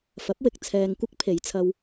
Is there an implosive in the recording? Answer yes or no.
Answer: no